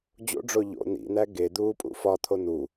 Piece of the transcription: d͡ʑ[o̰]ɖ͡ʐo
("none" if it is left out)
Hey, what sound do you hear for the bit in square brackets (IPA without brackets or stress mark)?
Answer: o̰